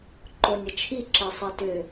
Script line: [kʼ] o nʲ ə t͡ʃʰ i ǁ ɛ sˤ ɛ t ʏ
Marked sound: incorrect: ǃ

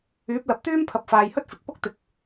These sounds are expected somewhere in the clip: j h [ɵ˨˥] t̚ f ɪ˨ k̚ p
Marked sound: incorrect: ɵ˥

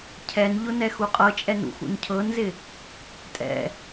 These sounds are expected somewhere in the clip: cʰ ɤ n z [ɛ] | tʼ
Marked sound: incorrect: ɪ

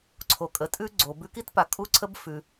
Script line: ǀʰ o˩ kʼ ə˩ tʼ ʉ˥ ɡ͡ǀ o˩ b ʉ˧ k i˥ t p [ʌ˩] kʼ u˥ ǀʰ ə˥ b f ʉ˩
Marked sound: incorrect: a˩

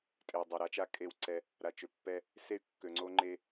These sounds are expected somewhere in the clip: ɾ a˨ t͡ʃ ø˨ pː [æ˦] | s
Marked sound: incorrect: ɛ˦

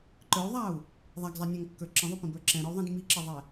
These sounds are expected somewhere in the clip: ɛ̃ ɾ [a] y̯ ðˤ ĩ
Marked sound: incorrect: ə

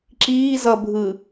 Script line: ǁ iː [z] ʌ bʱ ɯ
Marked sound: correct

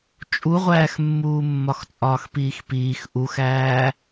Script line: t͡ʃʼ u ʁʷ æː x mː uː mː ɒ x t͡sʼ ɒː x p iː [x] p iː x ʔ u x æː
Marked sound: correct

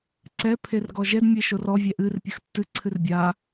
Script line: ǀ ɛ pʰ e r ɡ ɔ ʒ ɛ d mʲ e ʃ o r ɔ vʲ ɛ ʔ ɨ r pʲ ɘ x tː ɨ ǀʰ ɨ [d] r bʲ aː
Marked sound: incorrect: none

